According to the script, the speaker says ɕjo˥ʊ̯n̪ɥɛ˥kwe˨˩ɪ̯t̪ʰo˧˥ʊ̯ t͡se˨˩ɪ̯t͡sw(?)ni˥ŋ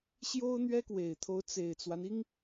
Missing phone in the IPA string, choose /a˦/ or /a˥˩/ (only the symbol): a˦